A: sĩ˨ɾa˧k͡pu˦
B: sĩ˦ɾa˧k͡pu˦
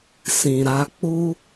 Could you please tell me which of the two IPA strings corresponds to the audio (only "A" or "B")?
A